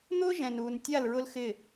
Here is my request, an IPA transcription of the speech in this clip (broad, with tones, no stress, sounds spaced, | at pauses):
n̪ ʊː˦ ʒ ɛ̃˨ n uː˨ n tʲ a˦˨ l ɹ ʊ˦ l x ɪ˦˨